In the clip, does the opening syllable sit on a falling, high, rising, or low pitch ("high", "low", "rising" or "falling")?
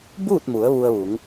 falling